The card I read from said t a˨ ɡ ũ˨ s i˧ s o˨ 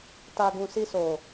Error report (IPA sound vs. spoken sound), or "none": none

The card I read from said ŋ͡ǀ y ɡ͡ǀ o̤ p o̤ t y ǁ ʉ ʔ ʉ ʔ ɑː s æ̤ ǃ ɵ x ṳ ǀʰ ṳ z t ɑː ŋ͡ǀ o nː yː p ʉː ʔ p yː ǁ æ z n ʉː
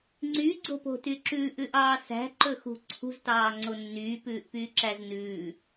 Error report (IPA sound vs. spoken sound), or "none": none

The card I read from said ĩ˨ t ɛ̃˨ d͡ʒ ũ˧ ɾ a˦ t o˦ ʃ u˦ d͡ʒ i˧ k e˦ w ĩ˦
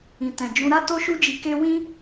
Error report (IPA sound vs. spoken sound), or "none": none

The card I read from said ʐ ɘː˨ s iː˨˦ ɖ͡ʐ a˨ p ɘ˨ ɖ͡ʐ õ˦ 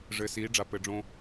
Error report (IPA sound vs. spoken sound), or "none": none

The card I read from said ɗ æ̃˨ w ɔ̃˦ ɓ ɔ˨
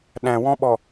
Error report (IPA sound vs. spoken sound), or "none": none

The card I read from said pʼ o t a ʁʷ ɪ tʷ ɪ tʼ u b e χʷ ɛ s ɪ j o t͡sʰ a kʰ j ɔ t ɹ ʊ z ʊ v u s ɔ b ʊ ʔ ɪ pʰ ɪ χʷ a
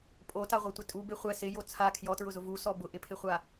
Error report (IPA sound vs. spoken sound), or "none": none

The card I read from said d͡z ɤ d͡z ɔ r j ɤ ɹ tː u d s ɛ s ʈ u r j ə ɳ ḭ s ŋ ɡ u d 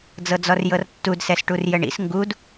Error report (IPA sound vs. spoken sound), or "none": ɹ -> r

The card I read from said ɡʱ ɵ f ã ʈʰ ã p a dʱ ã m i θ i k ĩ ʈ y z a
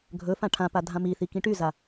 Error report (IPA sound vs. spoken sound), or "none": none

